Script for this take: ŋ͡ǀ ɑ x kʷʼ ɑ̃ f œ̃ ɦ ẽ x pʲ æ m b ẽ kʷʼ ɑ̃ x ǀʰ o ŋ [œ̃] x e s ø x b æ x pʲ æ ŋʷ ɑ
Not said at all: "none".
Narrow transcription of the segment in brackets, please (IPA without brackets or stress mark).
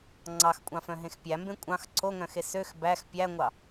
œ̃